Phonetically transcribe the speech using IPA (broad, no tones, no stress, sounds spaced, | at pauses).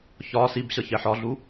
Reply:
ç ɒ s i b ɕ ʌ ç ɛ ħ ɒ ɮ u